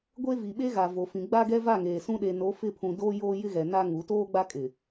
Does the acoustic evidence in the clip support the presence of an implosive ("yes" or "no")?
yes